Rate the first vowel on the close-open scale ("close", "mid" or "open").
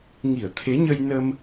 close